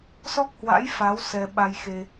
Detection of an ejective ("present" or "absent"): absent